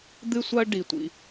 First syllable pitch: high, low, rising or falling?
high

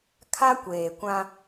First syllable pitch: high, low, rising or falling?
high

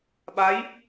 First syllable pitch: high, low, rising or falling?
rising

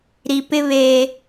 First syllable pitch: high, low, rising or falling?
low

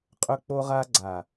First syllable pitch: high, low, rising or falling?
high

